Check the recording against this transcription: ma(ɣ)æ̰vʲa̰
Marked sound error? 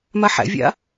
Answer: yes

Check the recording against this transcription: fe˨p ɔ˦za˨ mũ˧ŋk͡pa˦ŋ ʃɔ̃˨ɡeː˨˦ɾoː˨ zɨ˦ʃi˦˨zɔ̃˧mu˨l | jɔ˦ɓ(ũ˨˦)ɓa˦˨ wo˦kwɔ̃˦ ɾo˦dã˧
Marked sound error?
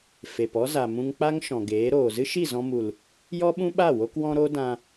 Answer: yes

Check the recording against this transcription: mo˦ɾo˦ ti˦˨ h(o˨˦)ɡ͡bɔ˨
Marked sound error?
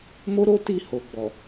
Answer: yes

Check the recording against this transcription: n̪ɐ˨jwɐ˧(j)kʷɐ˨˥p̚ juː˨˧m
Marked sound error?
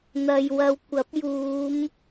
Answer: yes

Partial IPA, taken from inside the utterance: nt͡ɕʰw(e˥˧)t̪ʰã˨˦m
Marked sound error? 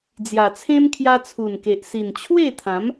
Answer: no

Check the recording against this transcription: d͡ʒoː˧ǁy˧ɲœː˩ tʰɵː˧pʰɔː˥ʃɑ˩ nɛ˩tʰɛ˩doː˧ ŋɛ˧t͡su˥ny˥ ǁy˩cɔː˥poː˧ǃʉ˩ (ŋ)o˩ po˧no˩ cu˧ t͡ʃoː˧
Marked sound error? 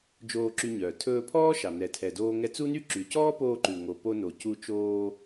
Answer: no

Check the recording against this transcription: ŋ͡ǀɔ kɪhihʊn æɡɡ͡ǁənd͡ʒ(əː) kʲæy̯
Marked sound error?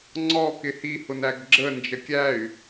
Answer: yes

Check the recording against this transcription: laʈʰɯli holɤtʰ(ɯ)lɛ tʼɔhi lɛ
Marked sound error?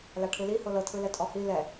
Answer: no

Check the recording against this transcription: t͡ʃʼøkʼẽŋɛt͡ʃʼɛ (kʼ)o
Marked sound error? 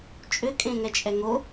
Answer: yes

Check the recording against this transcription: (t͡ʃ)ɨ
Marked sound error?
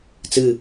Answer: yes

